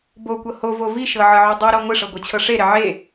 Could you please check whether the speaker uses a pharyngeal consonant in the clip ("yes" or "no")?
yes